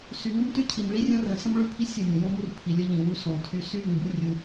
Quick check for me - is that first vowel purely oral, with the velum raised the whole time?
yes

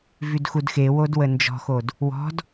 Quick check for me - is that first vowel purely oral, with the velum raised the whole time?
yes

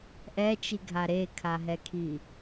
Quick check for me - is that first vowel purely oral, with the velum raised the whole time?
yes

